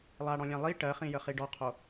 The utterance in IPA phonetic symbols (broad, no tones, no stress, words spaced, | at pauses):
lˠaɽɔ̃lʲã lˠi ʈɜχĩjəχi ɖɔqʰo